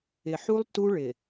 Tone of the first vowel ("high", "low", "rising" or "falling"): low